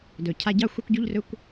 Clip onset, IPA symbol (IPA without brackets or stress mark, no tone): d